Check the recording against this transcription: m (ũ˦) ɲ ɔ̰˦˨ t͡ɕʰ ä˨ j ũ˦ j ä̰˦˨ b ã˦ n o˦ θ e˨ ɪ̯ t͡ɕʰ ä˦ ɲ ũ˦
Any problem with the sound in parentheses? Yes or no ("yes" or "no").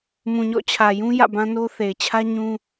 yes